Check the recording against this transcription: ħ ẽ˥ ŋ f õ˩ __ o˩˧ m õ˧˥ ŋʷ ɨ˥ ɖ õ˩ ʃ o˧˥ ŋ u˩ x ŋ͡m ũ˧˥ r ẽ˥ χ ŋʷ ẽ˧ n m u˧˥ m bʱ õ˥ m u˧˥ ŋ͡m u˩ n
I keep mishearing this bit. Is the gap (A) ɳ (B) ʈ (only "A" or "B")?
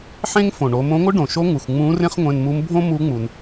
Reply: A